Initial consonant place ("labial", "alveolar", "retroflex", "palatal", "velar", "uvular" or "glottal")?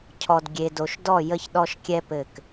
palatal